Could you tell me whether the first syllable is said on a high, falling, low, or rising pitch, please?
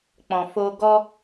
low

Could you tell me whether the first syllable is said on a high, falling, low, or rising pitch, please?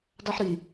high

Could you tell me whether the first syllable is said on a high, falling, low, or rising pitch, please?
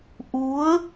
rising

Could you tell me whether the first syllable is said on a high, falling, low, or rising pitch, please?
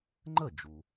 falling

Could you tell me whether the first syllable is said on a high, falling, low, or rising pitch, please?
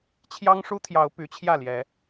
high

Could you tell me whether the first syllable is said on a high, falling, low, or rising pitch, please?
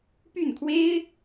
falling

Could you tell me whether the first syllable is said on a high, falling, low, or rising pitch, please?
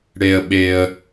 low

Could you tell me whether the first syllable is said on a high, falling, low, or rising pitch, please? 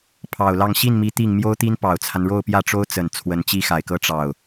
low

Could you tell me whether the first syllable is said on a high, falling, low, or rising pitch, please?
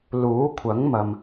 rising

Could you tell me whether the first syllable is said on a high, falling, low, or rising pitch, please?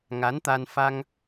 rising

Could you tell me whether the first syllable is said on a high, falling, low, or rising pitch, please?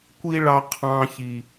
high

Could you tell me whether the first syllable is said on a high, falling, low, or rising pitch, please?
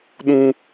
high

